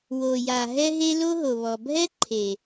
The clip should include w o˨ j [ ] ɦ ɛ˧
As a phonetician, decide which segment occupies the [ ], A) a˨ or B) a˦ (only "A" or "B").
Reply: A